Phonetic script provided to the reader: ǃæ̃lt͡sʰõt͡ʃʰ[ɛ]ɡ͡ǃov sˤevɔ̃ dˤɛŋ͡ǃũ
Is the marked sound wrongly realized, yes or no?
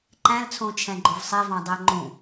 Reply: yes